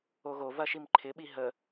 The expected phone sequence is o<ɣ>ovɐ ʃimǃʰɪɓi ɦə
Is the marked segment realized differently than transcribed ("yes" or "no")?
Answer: no